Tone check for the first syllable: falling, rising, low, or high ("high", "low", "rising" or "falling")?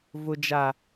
low